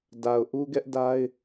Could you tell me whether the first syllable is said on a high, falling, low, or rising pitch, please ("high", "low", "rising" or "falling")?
low